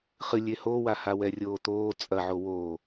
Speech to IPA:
χ ɨ lʲ e h o w a h a w ɛ rʲ oː t̪ oː t͡sʼ ɐ ʕ o w oː

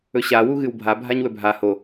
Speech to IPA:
ɵ ɕ a w u ɣ ɨ w bʱ a bʱ a ɲ w ɵ bʱ a h o

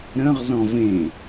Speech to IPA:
ɾ ə̃ ʁ z ɔ̃ v ẽ

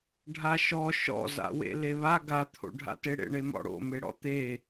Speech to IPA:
ɖʱ a ʃ ɔ ʃ ɔ̰ z a̰ w ḛ l e β a ɡ a t̪ʰ o̰ ɖʱ a̰ t e ɽ ḛ ɳ e m ɔ̰ ɽ o̰ m e ɽ ɔ̰ t̪ e

